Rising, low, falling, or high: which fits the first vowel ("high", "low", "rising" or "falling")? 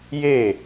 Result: falling